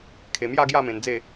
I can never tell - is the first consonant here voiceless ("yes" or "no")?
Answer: yes